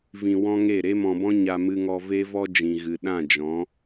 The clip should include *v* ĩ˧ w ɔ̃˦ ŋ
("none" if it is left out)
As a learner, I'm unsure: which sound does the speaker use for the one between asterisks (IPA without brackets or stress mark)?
v